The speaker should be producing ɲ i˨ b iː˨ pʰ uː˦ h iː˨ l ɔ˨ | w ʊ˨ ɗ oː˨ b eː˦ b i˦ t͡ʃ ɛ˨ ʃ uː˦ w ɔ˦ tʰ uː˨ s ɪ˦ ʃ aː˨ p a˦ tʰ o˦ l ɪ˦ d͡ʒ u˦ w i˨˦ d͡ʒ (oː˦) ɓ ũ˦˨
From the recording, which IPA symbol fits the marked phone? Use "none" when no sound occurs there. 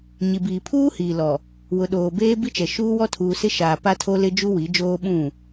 oː˦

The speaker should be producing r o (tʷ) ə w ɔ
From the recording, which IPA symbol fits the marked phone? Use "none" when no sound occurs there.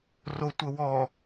tʷ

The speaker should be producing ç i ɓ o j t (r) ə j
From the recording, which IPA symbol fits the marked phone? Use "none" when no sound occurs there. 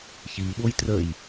r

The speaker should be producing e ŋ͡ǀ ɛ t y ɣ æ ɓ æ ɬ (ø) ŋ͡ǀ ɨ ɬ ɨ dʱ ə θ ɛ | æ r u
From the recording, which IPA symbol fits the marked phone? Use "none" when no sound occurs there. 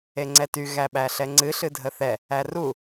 ɛ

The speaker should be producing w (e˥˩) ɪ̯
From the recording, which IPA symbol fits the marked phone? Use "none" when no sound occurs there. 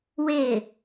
e˥˩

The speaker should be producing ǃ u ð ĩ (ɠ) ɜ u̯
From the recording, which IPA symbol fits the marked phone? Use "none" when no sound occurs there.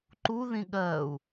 ɠ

